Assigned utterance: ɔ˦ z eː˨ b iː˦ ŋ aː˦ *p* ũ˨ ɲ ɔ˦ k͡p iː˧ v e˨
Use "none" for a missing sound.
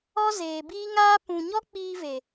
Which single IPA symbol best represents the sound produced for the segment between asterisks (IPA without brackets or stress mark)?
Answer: p